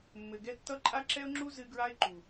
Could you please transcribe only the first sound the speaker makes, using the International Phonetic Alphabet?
mː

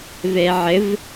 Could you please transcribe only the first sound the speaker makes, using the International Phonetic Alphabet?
v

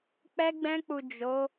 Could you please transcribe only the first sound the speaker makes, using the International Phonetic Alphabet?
k͡p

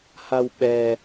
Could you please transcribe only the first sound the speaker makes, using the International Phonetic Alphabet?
h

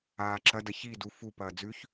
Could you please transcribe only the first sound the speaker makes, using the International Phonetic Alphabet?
aː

